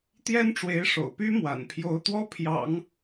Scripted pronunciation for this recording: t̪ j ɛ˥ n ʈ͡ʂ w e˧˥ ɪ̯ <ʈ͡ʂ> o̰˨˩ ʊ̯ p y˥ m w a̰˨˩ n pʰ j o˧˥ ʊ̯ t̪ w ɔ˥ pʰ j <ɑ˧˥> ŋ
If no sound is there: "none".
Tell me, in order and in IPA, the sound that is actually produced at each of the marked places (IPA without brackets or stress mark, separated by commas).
ʂ, ɑ̰˨˩˦